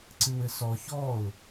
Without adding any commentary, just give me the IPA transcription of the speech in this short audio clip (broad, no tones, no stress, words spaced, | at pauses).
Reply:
ǀɨwɘsɔ çɔʊ̯